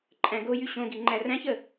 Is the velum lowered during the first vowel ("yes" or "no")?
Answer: yes